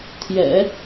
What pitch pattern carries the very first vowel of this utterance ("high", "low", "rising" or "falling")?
low